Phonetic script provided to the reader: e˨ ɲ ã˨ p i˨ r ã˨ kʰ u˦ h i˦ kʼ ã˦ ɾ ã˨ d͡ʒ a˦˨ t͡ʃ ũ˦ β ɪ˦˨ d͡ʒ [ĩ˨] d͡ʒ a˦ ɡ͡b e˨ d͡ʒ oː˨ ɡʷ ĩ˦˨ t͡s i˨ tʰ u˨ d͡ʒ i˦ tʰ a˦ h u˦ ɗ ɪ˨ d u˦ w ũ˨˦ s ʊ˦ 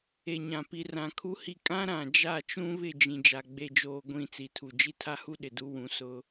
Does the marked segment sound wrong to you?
no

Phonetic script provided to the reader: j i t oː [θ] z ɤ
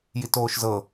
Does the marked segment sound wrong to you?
yes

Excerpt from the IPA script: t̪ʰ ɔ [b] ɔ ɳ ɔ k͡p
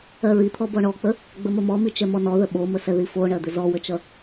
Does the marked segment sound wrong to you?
no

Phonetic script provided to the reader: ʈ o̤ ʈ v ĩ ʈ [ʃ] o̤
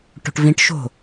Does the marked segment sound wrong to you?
no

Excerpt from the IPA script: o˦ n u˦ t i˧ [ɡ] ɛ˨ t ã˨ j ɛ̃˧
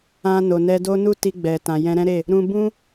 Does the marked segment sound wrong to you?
yes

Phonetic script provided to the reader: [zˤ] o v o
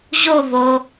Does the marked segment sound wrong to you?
yes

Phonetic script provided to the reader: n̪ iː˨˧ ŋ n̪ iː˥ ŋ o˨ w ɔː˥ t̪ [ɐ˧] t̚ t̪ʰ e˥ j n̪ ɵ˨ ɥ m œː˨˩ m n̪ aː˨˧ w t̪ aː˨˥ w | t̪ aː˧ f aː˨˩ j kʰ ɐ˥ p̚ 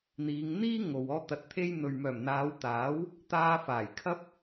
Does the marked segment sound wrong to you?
no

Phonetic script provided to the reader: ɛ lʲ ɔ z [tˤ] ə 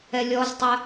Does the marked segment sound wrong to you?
no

